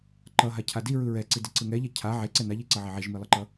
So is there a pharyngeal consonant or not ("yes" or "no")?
yes